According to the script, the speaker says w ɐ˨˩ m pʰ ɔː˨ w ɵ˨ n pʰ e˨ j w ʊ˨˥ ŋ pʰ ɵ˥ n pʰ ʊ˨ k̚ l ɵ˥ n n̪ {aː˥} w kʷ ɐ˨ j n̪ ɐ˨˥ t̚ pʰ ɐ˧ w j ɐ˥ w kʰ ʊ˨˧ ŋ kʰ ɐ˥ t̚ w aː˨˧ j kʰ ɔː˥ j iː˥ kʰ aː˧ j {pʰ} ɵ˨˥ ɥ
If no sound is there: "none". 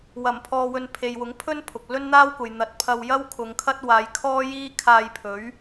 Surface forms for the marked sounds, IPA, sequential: aː˥, pʰ

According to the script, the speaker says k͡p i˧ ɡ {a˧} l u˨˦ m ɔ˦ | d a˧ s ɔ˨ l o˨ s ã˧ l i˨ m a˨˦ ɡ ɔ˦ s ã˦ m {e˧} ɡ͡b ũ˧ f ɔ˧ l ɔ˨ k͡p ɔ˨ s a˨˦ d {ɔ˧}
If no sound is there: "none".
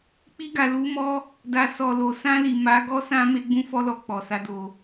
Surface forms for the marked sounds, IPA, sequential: a˨, e˧, o˧

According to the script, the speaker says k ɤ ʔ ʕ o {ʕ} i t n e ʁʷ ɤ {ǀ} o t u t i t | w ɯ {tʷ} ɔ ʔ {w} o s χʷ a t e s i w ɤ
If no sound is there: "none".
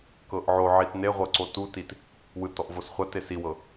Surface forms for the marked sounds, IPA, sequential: ʕ, ǀ, t, v

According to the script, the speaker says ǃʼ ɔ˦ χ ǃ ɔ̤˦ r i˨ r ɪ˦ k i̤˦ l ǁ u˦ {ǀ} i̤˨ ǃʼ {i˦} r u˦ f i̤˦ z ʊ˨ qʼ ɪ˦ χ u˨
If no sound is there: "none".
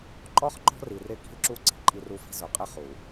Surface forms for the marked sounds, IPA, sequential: ǀ, i˦

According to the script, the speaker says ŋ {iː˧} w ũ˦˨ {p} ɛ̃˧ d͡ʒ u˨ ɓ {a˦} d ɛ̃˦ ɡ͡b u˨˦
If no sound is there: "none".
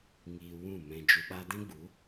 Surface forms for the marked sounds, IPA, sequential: iː˧, m, a˧

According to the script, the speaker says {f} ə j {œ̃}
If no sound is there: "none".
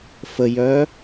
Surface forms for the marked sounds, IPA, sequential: f, œ

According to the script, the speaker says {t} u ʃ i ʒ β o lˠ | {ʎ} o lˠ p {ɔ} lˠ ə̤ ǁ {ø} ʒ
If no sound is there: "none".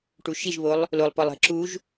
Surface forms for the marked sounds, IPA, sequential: ʈ, l, ɔ, u

